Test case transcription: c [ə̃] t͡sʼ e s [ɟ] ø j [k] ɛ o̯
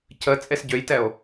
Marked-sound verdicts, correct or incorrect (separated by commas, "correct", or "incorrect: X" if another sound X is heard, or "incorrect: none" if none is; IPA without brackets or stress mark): incorrect: ə, correct, incorrect: t